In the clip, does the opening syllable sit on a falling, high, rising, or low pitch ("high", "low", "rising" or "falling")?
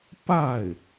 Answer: falling